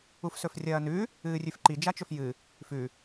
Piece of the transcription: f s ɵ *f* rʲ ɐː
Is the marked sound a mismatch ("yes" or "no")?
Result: no